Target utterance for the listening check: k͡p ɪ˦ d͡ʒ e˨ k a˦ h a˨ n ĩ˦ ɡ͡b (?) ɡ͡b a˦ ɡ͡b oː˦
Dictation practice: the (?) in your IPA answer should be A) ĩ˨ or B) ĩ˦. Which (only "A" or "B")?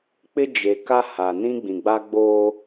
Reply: A